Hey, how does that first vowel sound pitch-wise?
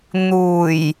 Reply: low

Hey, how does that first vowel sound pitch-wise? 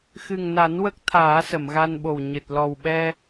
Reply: low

